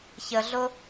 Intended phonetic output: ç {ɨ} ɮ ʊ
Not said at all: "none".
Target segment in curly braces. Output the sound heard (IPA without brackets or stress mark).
ə